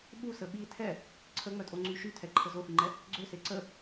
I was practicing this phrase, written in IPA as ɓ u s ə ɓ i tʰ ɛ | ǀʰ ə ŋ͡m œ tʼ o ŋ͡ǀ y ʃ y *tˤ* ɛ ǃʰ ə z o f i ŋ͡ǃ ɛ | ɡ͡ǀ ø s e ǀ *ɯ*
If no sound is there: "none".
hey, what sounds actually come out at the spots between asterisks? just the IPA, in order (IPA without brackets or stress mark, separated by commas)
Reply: tʰ, ə